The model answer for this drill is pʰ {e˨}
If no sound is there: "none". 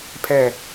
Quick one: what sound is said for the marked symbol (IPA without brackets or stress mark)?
ɛ˨